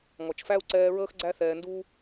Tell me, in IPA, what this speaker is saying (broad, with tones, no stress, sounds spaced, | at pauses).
ŋ ɔ˨ t͡ʃ f æ˦ u̯ ǀ ɛː˧ ɹ əː˦ x ɡ͡ǀ æ˦ θ ɛː˧ n d uː˦